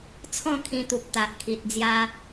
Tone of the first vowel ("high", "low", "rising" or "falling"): falling